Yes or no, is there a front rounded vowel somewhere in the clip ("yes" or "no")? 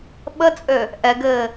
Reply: yes